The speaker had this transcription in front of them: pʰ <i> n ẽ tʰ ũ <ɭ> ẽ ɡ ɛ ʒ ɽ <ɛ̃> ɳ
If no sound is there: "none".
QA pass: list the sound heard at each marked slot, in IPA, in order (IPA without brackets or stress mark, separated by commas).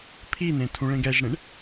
i, ɭ, ẽ